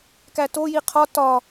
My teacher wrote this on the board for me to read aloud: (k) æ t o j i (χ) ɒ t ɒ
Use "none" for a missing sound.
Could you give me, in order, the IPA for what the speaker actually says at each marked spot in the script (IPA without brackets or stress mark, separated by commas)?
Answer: k, qʰ